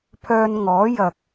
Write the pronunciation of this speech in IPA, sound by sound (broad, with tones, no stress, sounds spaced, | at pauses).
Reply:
pʰ œː˧ n ŋ ɔː˨˥ j ɐ˨ k̚